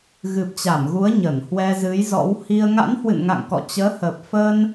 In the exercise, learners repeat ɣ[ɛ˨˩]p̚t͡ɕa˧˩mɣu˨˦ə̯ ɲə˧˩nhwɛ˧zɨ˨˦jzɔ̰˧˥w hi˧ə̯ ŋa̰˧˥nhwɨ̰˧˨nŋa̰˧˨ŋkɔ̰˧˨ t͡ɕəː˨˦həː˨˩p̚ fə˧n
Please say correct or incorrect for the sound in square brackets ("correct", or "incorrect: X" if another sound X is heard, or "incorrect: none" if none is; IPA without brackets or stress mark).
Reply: incorrect: ɨ˨˩